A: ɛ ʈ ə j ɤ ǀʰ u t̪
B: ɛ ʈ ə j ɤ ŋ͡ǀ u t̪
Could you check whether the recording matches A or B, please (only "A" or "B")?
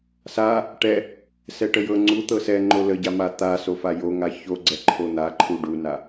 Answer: B